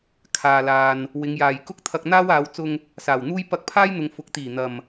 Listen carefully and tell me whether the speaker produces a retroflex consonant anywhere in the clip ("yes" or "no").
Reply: no